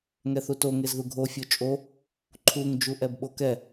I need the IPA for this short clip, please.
ŋɛθuto ŋezðuɡʱo fʲot͡ʃʼo | ǃʰuŋ d͡ʒuʔɛbɓokɛ

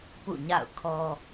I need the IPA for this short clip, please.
pṵ˦˨ɲa̰˦˨ʊ̯kʰɔ˦

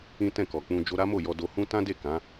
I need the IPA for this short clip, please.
ĩ˦ tɛ̃˦˨kɔ˨k͡pũ˧ d͡ʒo˧ɾa˦mo˦˨jɔ˧ do˧hũ˦ tã˦de˦˨ kã˨˦

